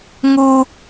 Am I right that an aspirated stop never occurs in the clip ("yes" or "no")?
yes